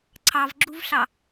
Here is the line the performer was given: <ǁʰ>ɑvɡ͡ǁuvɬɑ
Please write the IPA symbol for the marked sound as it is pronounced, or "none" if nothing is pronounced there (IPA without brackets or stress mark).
ǀʰ